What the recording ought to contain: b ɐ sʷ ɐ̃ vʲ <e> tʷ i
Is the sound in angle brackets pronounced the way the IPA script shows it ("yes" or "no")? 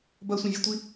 yes